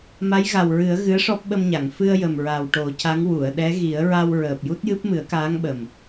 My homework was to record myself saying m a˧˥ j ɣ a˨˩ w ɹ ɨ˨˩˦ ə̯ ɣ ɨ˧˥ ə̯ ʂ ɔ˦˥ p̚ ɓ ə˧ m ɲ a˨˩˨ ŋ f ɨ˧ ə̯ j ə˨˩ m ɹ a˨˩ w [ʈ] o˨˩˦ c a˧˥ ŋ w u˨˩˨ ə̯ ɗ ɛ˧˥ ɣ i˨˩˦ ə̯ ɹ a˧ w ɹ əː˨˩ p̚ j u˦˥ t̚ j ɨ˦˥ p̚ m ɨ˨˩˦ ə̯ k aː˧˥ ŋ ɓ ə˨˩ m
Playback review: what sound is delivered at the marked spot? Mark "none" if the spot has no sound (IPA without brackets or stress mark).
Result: ʈ